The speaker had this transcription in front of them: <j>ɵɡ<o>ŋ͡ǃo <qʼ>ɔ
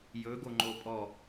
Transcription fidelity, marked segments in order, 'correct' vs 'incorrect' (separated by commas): correct, correct, incorrect